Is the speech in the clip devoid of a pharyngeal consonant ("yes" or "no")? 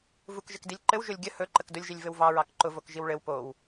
yes